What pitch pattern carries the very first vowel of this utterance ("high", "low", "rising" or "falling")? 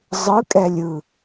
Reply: rising